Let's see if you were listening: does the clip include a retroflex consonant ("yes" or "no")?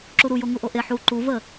no